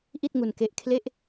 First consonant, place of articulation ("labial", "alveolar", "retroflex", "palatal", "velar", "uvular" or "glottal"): glottal